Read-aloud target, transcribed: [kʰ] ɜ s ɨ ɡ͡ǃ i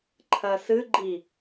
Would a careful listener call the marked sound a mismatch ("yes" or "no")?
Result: yes